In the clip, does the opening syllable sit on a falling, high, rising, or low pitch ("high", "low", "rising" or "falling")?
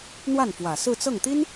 falling